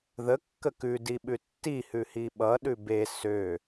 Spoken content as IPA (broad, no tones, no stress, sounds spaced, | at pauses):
ð ə kː ə k ʉ d i ɓ ʉ tː i h ʉ h i ɓ ʌ ɗ ʉ b e s ø